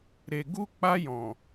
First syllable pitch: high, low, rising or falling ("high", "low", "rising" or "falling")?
low